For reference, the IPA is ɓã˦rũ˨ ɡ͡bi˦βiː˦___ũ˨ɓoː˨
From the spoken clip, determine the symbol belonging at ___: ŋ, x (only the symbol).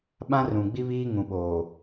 ŋ